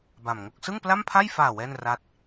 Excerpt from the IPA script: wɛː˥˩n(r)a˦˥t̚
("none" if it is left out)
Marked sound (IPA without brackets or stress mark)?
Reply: r